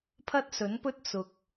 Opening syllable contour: high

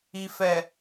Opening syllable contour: low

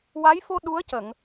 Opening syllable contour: rising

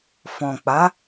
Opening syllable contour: low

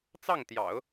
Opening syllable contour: falling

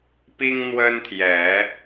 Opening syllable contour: high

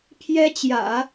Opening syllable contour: high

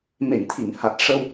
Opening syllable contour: low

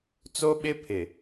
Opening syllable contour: high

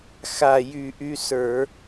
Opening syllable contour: low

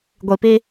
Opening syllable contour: low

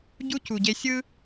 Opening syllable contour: high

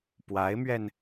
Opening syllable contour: rising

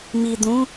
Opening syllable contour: low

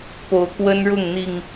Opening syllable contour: rising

